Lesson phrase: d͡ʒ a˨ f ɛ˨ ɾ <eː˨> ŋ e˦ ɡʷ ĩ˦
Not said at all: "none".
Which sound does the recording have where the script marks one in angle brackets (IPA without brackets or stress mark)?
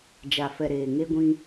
eː˨